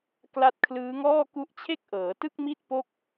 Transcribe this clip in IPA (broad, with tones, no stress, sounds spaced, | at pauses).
k l a˦˥ t̚ kʰ l ɯː˦˥ ŋ ɔː˥˩ k u˦˥ ʔ t͡ɕʰ e˥˩ k̚ ʔ ɤː˩˦ t ɯ˥˩ k̚ m i˥˩ t̚ p o˥˩ k̚